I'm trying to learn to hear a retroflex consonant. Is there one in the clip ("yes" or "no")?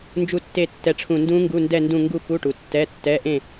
yes